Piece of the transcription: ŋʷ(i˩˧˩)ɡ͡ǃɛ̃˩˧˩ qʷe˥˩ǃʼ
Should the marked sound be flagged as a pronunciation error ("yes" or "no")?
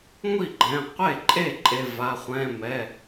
yes